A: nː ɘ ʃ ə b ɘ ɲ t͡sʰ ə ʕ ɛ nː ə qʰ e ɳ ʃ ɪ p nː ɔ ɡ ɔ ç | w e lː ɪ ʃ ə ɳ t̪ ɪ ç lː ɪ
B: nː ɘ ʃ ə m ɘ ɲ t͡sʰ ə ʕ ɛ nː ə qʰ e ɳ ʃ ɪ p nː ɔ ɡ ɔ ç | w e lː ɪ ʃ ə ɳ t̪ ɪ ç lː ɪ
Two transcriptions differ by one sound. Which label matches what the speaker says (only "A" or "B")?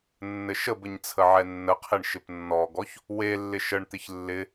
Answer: A